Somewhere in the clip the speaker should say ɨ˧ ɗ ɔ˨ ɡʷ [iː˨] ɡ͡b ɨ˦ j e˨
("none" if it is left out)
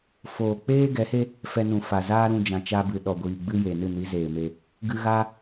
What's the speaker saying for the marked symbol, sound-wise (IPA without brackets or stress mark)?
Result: iː˨